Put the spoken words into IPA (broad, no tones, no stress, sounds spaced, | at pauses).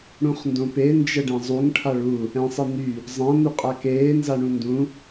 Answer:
ɽ ũ χ n d õ p e n d͡ʒ ə ɖ ɛ̃ zˤ u ŋ ʈʰ a ɭ u | ɛ̃ sˤ ɘ n̪ y | zˤ ã n̪ u qʼ a k eː n z a ɳ ũ n d ũ